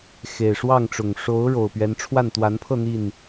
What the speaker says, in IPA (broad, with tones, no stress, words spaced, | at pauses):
xe˨˩ɪ̯ʂwɑ˥˨ŋʈ͡ʂʊ˨˩ŋ ʂo˨˦ʊ̯ ɻo˨˩ʊ̯pɥɛ˨˦nʈ͡ʂʰwa˥˨n t̪wa˨˦npʰɤ˥˨ n̪i˥˨n